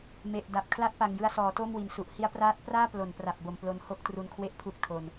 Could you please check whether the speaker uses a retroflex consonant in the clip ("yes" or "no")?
no